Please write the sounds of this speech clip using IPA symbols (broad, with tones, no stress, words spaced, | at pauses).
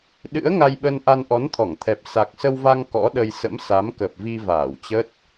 ɗɨ̰˧˥ə̯ŋa˧jɓə˧nʔa˧n ʔɔ˨˦nt̪ʰɔ˧˩ŋt̪ʰɛ˨˩p̚ sa˨˩k̚sə˧wva˧ŋ kɔ̰˧˥ ɗə˧j sə̰˧˥msa˨˦mkə˨˩p̚vi˧ vaː˧˩wt͡ɕə˦˥t̚